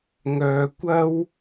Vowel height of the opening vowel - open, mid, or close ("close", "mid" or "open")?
mid